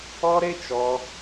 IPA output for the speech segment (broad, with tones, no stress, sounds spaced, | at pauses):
ɔ˦ ɾ e˦ t͡ʃ ɔ˧